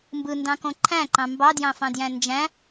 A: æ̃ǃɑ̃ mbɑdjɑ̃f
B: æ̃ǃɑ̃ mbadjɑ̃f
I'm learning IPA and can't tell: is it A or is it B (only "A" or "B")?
A